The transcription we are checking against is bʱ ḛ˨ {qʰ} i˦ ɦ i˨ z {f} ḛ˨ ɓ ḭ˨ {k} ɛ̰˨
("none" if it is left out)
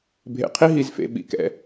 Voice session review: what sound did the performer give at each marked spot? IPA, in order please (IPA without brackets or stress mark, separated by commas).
qʰ, f, k